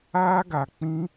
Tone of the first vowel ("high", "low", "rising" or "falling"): high